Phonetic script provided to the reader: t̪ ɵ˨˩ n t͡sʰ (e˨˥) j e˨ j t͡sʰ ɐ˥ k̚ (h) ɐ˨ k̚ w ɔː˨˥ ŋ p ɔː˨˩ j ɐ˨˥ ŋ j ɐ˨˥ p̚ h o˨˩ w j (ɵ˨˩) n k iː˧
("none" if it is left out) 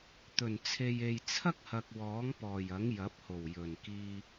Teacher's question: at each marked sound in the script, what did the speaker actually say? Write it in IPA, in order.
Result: e˨, h, ɵ˨˩

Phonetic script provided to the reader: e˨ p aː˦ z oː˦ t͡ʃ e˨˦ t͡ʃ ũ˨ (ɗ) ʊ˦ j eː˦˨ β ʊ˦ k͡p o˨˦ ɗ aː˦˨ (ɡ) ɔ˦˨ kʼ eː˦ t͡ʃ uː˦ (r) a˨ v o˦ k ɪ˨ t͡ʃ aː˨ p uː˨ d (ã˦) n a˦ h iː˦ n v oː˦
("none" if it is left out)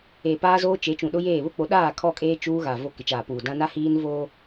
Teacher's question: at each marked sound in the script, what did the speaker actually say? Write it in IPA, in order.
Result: ɗ, kʰ, ɣ, ã˦

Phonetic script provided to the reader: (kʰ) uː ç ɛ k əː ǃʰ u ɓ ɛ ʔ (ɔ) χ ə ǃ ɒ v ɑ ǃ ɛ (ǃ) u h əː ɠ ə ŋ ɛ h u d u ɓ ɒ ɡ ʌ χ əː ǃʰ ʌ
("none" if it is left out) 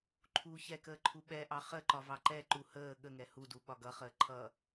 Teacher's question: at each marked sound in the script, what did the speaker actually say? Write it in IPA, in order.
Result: ǃʰ, ɑ, ǃ

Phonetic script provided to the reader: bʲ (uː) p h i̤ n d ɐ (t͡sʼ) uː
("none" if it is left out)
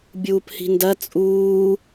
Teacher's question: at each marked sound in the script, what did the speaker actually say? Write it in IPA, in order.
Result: uː, t͡sʼ

